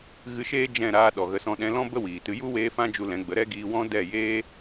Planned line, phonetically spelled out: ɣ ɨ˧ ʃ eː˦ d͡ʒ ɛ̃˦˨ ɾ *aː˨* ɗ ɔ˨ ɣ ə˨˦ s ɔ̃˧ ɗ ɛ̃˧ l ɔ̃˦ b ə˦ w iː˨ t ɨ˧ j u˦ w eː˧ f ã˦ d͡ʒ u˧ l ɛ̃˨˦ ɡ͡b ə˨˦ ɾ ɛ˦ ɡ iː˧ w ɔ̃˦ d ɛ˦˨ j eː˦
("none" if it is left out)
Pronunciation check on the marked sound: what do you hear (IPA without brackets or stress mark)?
aː˧